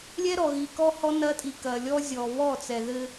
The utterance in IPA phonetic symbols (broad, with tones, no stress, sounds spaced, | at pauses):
lʲ ɛ˦ ɾ ɔ˨ ɣ i˨ k ɔ˦ h ɔ˦ n ɐ˦ tʼ i˨ k ɐ˨ lʲ ɔ˦ zʲ ɔ˨ β ɔ˦˨ t͡s ɛ˨ ð ɘ˦